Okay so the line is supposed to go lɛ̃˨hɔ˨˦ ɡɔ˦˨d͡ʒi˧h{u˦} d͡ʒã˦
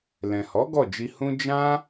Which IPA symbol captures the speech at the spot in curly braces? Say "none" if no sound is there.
ũ˦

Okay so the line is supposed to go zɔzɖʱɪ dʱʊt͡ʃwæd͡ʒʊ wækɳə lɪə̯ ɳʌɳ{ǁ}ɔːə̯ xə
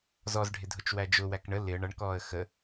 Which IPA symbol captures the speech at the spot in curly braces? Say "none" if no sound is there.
k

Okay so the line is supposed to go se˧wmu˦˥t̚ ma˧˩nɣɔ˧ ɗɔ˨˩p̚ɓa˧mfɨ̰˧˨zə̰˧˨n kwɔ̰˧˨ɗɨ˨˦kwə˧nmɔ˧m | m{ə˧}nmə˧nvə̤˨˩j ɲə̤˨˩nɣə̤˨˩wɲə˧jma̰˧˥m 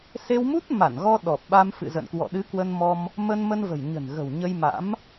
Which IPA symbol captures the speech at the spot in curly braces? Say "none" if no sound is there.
ə˧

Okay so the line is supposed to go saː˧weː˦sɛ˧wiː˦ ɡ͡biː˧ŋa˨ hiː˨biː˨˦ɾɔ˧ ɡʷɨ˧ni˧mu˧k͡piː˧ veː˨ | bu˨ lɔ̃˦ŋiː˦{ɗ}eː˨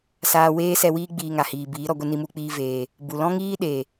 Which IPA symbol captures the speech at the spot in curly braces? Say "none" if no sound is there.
ɗ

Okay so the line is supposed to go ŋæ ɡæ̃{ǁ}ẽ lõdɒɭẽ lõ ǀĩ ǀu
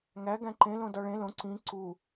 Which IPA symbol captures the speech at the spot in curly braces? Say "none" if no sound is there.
ǃ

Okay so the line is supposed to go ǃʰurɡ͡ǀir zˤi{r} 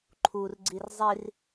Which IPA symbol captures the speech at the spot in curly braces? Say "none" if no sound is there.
r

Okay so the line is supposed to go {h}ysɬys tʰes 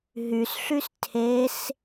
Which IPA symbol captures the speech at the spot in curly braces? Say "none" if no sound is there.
ɦ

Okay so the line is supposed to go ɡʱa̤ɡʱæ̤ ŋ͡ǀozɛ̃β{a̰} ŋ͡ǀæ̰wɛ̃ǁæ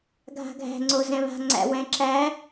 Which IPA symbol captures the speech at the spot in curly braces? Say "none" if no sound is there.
a̤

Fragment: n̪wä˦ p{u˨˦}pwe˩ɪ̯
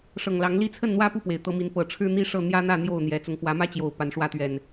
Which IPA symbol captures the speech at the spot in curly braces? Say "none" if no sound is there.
u˥˨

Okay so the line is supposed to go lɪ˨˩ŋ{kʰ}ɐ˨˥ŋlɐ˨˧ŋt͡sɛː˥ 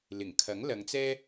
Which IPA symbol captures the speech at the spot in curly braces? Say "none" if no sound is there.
kʰ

